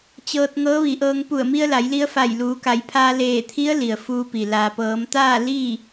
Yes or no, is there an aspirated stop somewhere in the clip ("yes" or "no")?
yes